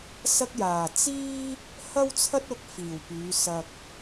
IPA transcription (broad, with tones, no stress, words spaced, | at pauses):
sɐ˧k̚jaː˨˩ t͡siː˥ | hɐ˥wt͡sʰɐ˥t̚ʊ˧k̚ fiː˨˩wpyː˨˧ sɐ˨k̚